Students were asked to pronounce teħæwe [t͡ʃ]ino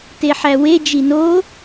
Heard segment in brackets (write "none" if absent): d͡ʒ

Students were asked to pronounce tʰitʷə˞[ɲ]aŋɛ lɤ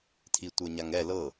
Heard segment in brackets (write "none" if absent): ɲ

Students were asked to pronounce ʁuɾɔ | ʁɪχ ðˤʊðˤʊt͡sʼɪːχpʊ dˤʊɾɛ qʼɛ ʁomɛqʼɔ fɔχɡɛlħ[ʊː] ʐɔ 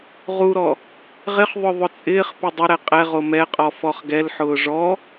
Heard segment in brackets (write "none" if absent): ʊː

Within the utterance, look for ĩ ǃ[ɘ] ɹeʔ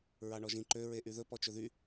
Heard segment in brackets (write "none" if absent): ø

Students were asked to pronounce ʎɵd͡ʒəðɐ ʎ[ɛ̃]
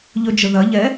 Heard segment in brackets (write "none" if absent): ɛ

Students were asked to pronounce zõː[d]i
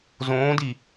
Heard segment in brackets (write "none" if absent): d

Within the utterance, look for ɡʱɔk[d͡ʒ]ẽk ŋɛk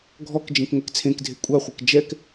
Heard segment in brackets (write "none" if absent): d͡ʒ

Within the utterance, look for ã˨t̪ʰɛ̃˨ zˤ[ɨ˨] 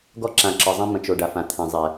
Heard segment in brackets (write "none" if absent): ɛ˨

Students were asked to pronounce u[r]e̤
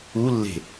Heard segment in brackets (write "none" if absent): lː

